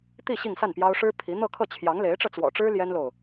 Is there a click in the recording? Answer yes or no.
no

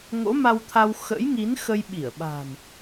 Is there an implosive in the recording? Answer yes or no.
yes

